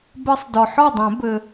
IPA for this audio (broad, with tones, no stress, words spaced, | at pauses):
bɘ˦˥sˤdɔ˨ ħɔ˥˩dˤɛ̃˨˩˦ bɘ˨